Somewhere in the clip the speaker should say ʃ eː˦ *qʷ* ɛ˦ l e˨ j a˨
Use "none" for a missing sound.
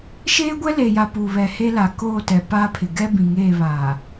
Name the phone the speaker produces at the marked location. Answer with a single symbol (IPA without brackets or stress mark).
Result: ɡʷ